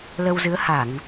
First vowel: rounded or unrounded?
unrounded